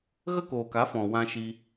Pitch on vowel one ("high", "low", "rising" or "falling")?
high